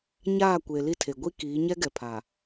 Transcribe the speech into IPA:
ɲ aː˦˨ kʷ e˨ l i˦ tʰ e˨ ɡʷ i˦ k iː˨˦ ɲ ɛ˦ ɡ ɛ˨ pʰ a˨

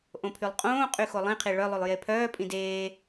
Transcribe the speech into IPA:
ʔ õ pʰ y lˠ qʼ õː qʼ y x o lˠ ĩ qʰ i ɭ œ lˠ y lˠ j e pʰ œː pʼ ĩ d eː

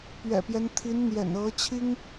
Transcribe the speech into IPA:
p ɥ ɛ̰˨˩ p j ɛ˦ n t̪ʰ i˧˥ n n̪ j ɛ̰˨˩ n ɤ˧˥ t͡ɕʰ i˥ ŋ

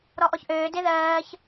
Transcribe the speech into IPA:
ɾ ɔ ʔ ɔ ç ʔ øː d e ð ɜː ç

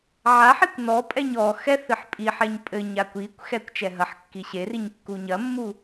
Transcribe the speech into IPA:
ʕ a ħ i kʷ n ɔ pʼ ɛ ɲ ɔ x ɛ θ ɨ ħ pʼ i ħ ɛ ɲ pʼ ɘ ɲ a kʷ i kʷ x ɛ kʷ t͡ʃ ɛ ɦ ɐ ħ kː i ɕ e r i ɲ kː u ɲ ɐ mː u

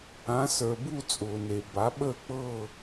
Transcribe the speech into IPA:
ã˨˥ s ə˞˨ b u˥˧ t͡sʼ ʊː˨ n e˨ b a˨˥ ɓ əː˥˧ k͡p ɤ˥˧

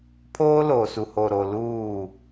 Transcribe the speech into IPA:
pʰ oː˦ l oː˨ s u˨ h o˨ ɾ o˨ l uː˦˨

